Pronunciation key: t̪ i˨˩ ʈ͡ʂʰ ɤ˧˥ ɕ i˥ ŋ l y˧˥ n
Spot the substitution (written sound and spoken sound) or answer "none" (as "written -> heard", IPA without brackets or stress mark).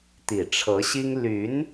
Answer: none